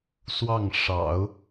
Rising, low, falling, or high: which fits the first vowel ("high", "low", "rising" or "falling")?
falling